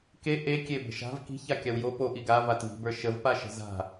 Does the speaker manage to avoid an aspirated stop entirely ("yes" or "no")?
yes